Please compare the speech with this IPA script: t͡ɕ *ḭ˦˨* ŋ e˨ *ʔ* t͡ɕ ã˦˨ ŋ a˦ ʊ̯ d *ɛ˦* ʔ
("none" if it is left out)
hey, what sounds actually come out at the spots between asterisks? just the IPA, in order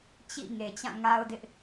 ḭ˦˨, none, ɪ˦

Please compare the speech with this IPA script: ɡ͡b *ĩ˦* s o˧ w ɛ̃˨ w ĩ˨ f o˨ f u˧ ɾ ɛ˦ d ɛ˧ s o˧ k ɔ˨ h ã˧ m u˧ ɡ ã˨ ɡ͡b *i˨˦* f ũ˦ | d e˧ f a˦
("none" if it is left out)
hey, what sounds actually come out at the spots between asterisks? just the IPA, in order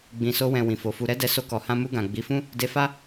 ĩ˨, i˨˦

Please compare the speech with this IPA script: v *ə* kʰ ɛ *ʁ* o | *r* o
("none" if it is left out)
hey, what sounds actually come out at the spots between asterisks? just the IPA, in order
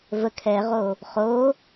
ə, ʁ, χ

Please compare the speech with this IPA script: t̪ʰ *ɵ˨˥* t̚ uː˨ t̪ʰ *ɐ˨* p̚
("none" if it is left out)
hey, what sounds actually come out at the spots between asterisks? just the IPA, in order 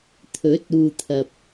ɵ˨˥, ɐ˨

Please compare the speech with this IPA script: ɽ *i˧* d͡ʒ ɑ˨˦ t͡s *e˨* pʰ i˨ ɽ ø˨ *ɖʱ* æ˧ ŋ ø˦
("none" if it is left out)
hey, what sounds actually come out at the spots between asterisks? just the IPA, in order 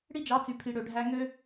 i˦, y˨, ɖʱ

